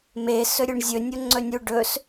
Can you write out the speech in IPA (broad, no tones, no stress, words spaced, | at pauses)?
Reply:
me sɵɾʲuɳzʲɵ nʲoŋ͡ǀɵnʲu ɖɵs